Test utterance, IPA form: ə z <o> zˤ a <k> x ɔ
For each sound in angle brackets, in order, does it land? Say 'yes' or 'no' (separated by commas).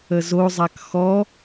yes, yes